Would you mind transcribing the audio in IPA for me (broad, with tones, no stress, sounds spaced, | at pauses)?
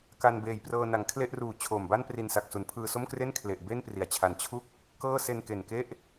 k a˧ n b eː˨˩ j p r ɤː˧ n a˩˦ ŋ kʰ l e˥˩ ʔ r uː˨˩ t͡ɕʰ oː˨˩ m b a˥˩ n p r i˧ n s a˨˩ k̚ s u˩˦ n pʰ ɯː˧ s o˥˩ m k r e˥˩ n kʰ l e˨˩ ʔ b e˥˩ n p r i˩˦ a̯ t͡ɕʰ a˨˩ n t͡ɕʰ u˥˩ k̚ | k ɤː˥˩ s e˧ n k e˨˩ n k e˥˩ ʔ